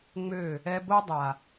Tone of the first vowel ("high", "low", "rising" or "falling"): falling